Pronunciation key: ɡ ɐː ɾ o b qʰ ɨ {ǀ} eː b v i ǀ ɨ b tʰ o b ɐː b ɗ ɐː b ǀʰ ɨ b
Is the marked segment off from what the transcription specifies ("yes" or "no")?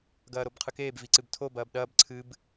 yes